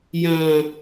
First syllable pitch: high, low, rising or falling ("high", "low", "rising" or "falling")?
low